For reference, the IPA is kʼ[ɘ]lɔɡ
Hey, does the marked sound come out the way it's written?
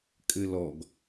yes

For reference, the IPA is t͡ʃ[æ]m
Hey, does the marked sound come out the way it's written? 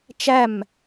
yes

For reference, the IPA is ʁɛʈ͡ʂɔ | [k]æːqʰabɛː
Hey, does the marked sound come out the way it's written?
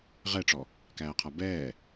yes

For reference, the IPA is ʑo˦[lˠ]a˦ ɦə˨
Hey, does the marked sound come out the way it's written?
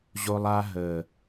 yes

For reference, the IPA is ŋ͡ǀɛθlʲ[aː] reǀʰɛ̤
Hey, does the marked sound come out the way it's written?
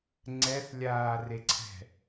yes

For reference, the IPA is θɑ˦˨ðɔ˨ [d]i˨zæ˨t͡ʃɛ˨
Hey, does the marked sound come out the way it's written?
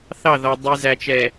no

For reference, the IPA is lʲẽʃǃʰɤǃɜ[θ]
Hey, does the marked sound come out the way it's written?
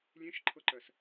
no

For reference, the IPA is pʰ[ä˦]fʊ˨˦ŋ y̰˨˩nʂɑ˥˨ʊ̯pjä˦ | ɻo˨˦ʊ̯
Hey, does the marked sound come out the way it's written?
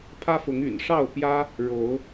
yes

